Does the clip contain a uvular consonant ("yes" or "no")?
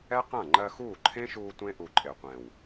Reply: yes